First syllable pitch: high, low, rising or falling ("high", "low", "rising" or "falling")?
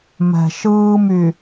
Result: low